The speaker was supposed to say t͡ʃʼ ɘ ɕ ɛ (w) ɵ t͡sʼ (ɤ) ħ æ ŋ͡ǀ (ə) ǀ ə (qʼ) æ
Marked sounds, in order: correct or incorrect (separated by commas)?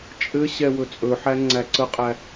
correct, incorrect, incorrect, correct